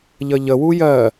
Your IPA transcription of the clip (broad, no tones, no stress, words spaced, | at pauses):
ʎəʎəwu jɜ